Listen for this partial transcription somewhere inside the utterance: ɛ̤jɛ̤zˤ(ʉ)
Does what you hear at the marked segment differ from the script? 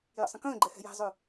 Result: no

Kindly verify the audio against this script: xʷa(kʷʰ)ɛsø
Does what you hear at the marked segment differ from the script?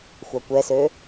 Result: yes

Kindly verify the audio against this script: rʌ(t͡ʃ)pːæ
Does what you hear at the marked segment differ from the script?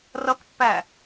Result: yes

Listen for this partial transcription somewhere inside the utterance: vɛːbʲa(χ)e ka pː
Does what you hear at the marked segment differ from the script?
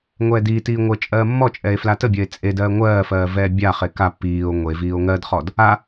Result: no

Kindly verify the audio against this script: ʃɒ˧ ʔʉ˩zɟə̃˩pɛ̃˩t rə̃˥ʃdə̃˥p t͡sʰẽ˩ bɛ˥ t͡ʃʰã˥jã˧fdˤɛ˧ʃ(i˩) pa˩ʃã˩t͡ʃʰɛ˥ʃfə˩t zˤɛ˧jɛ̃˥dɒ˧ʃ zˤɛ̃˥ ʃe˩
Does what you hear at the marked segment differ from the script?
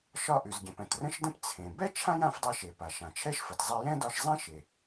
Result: yes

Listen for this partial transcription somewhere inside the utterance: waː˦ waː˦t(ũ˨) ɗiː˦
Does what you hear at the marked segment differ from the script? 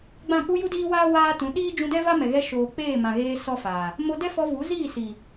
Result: yes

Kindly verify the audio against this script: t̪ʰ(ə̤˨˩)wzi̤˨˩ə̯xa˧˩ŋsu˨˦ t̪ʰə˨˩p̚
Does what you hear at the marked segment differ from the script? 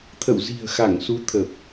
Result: yes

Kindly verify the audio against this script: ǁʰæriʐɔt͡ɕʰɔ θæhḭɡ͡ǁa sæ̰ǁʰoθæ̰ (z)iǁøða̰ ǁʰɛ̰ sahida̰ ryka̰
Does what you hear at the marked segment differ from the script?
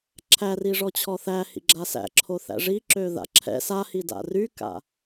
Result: yes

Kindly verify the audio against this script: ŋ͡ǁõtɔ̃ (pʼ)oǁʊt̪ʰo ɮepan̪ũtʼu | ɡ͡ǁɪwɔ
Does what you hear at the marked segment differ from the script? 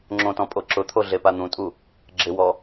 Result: no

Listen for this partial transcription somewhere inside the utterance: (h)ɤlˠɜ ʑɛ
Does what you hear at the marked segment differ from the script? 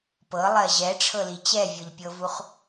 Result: yes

